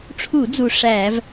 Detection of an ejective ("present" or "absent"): absent